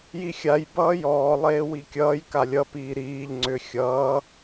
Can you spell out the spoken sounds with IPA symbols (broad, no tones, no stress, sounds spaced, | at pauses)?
j i xʲ a j b ʌː j ɔː lˠ eː w i kʲ ʌː j k a lʲ ʌ p iː ɾ iː ʎ ŋ͡ǀ ʏ xʲ ʌː